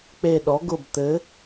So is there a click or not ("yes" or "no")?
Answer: no